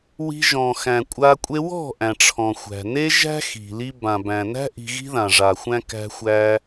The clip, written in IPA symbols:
w i̤˧ ʒ ɔ̃˨ x æ̃˨ kʷʼ a˧ kʷʼ e˧ w ɔ̤˦˨ ʔ æ̃˨ ʈ͡ʂʰ ɔ̃˨ xʷ æ̤˨ n e˦ ʒ æ̤˦ x i̤˨ l i˧ b ã˨ b æ̃˨ n æ̤˦ ʔ i̤˧ ɣ i̤˦ ð ã˨ ʐ a˨ xʷ æ̃˦ k æ̤˦ xʷ æ˦

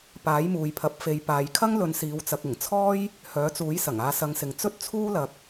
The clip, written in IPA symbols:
p aː˨˥ j m uː˨ j pʰ ɐ˨˥ p̚ f e˨˧ j p aː˨ j kʰ ɐ˥ ŋ l ɵ˨˧ n s iː˨ w t͡s ɐ˨ k̚ ɪ˨˩ ŋ t͡sʰ ɔː˥ j | h œː˨˥ t͡s uː˨˥ j s ɐ˨˩ ŋ aː˧ s ɐ˨˧ ŋ s ɪ˨ ŋ t͡s ɵ˥ t̚ t͡sʰ uː˥ l ɐ˨ k̚

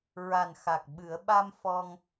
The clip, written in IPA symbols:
ɹ a˨˩ n x a˨˩ k̚ ɓ ɨ˨˩˦ ə̯ ɓ a˧ m f ɔ˧ ŋ

